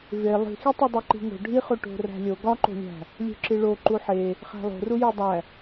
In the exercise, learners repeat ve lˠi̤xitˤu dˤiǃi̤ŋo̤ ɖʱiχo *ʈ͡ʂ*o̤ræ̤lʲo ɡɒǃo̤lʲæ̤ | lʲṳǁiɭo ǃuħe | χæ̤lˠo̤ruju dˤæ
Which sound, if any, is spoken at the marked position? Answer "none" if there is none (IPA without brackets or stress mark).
ʈ